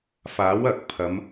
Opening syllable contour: rising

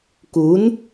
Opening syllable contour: rising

